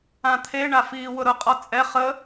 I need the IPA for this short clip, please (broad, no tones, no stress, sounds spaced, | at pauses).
ã t̪ʰ e ɳ a f iː w ʊ ɾ ʊ qʼ ɔ t͡sʼ ɛ χ ə